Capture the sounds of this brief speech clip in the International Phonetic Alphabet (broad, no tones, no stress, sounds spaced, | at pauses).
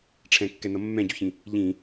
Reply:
ʈ͡ʂʰ ɛ̃ kː ɛ n ʌ mː ɛ̃ ɟ u ç ĩ | ʎ ĩ